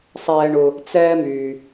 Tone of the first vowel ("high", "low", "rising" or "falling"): low